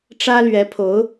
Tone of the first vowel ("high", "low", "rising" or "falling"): high